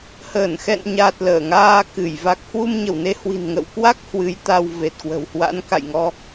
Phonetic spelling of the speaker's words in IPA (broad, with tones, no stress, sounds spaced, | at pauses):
h əː˧˩ n x ɛ̰˧˨ n ɲ a˨˩ t̚ l əː˧˩ ŋ aː˧ k ɨ˧˩ j v a˨˩ k̚ h w u˧ m ɲ ə˧˩ w n e˨˦ h w i̤˨˩ n ŋ ə̰˧˨ w k w a˦˥ k̚ h w ɨ˨˦ j t̪ a˧ w v e˨˩ t̚ k w ə̤˨˩ w h w a̰˧˥ n k a̰˧˨ j ŋ ɔ˧